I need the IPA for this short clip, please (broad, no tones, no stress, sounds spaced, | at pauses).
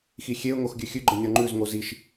x i xʲ e ʊ̯ ŋ o x ɡʲ ʉ xʲ ʉ ɡ͡ǃ ə nʲ ɔ ŋ͡ǃ ʉ z ŋ o z i ʃ